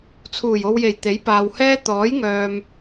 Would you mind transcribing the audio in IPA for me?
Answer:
t͡sʰ uː˨˩ j o˨ w j e˨˩ j t̪ e˨˥ j p aː˨ w h ɛː˥ t̪ ɔː˨˥ j ŋ œː˨ m

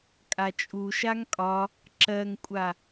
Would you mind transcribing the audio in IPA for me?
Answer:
kʼ a t͡ʃʼ u ʃ a ŋ kʼ ɒ | ǁ ɜ ŋ kʷʼ a

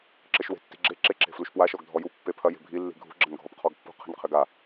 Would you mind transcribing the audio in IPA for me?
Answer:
ǁ ɘ ʃ w e̤ tː i̤ ɡ͡ǁ e ǁ e ǁ e̤ f l u ʃ p w a ʃ ɔ ɡ dʱ ɔ j u pː e pʰ ɐ j e̤ bʱ i lː i̤ ɡʱ ṳ ɡ͡ǁ ɐ n ɡʱ ɔ p qʰ ɔ ɡ pː ṳ qʰ i̤ n qʰ ɘ ɡ a

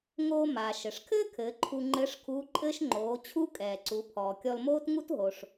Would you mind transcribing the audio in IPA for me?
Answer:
ŋ oː˧ m aː˩ ʃ ɘ˩ ʂ kʰ ɘː˥ kʰ ɘː˩˧ ǃʰ u˧ ŋ͡ǃ ɘː˧˥ ʂ kʰ uː˧˥ ǃʼ ɘː˥ ʃ ŋ͡ǃ oː˩˧ t͡ɕʰ u˥ kʼ ɛː˩ ǀ u˩˧ pʰ ɔː˩ kʲ ɔ˧ l m oː˥ t ŋ u˥ t ɦ o˩ ʂ

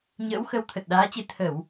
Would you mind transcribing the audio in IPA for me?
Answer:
ɲ ə̰ː˧˥ w x ə˨˦ w t̪ʰ ə˨˩ t̚ ɗ aː˨˦ t͡ɕ e˧ t̪ʰ ə˧˩˨ w

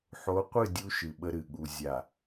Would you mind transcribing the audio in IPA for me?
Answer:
ħ o˨˦ qʷ ɨ˦˨ dʲ u˦ ʃ ɨ˨ ɓ ə˦ ɾ ɨ˨ ɠ u˨ zʲ a˨

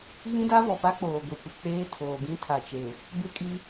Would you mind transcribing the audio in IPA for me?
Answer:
ɣ ĩ˦ d a˦ v ɔ˨ p a˦ k͡p oː˨ ɡʷ e˨ kʷ ɪ˨ k͡p eː˦ tʰ oː˨ ɡ ĩ˦ tʰ a˨ t͡ʃ e˨ | b ɪ˦ kʼ i˦

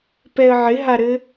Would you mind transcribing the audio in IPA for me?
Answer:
p ɛ ə̯ ʕ ɪ ɦ a ɾ ɘ

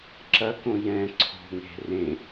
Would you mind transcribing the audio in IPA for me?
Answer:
ǁ ɐ k õ j ɛ̃ ǀʰ o̤ ŋ e̤ r ẽ

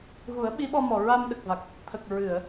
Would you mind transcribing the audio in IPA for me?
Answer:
ɣ u˨˩˦ ə̯ ɓ i˧˥ ɓ ɔ˧ m ɔ˨˩ ɹ a˧ m ɗ ə˨˩ k̚ v a˨˩ k̚ | t̪ʰ ə˨˩ k̚ ɹ ɨ˨˩˨ ə̯

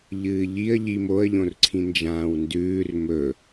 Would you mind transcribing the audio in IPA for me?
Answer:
ʎ ɨː ʎ i ə̯ ʎ i m o ə̯ ʎ õ r ǀʰ ĩ n d͡ʒ ãː w n d ʉː r m ɵ

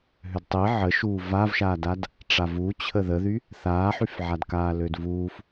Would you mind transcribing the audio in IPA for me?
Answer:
ɦ ø d tˤ i ʕ ə ʃ uː v a v ʃ aː d a d | ʈ͡ʂ a v u t͡ɕʰ ə ð ə ð y | θ aː ħ y f ʕ a d k aː l ø d v uː f

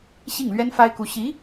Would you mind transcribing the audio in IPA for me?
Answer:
ɕ i˥˩ ŋ l ɥ ɛ˥ n f a˥ ɪ̯ k u˧˥ ɕ i˧˥

